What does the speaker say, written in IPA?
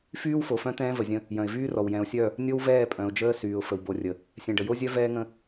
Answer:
fyː˦wfo˨fœ̃˦ t̪ɛ̃ː˦və˨zʲə̃˦ | jœ̃˨ɪ̯vyː˦rɔ˨w jɛ̃˨ʊ̯sʲœ˦˨ | nʲo˦wvɛː˦˨pʼœ̃˨ʊ̯d͡ʒəː˦ syː˨ʊ̯fə˨w bo˨rʲə˨ | sʲɛ̃˨ɖə˨jo˦zʲœ˦ vɛː˦ŋə̃˦

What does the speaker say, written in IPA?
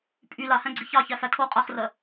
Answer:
pʼy lahæ̃ɡ͡ǀi çɑçæfæ tʰo qʼaχrɜ

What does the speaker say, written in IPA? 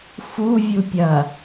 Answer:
fu vʲupʲɐ

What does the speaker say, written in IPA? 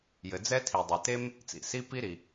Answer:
jɘ˩d͡zɛ˥tʰi˩ dˤe˩te˥m | t͡sḭ˩si˥ pi˥ɾi˩

